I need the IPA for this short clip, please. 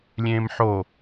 lʲ ẽː m ħ o

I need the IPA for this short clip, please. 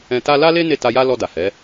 ɛ̃˧ t a˦ l a˦ l e˦ n e˦˨ t a˧ j a˦ l ɔ˧ d a˨ h ɛ˨˦

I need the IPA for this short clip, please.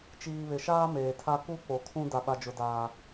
t͡ʃ iː˨ β ɪ˨ ʃ aː˦ m eː˨ tʰ a˦ k u˦ k͡p o˨ kʰ ũ˦ d a˦ ɓ a˦ d͡ʒ ʊ˦ d aː˦

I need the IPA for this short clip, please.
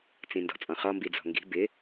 t͡s ĩ n d ɔ̤ t͡sʼ ɔ̃ χ ɔ m b i d͡z ɔ̤ ŋ ɡ i̤ b ɪ

